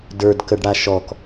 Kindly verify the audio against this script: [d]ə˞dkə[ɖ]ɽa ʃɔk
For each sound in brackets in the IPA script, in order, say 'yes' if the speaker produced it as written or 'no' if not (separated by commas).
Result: yes, yes